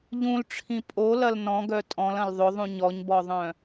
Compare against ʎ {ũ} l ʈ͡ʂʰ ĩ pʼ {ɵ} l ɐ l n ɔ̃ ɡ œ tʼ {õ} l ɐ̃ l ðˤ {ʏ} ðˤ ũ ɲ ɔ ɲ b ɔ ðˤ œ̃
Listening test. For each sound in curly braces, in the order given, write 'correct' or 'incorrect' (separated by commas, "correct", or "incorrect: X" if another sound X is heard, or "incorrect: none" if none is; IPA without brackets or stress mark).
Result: correct, incorrect: o, incorrect: ɔ̃, correct